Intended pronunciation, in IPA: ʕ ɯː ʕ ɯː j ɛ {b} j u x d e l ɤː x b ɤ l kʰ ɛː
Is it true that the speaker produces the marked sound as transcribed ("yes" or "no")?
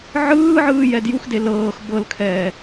no